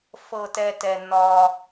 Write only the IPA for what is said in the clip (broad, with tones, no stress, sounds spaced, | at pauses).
f ɤ˥ t ɛ˥ t ɛ˦ n ɒ˥